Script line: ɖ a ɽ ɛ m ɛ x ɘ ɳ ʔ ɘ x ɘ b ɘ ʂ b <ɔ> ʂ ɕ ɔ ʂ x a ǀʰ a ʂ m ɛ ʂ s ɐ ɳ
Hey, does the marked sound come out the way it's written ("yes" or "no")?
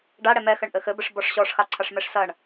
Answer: yes